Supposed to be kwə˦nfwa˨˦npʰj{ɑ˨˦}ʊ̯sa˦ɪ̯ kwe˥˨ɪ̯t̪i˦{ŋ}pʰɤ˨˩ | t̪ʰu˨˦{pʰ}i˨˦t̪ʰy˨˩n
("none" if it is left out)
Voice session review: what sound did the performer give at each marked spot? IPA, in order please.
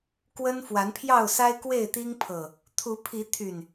ɑ˥˨, ŋ, pʰ

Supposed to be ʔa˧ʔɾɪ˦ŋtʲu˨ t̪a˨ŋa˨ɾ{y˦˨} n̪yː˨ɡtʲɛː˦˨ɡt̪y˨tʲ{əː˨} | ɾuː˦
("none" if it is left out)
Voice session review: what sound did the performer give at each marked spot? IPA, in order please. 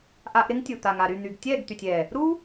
y˦˨, ɛː˨

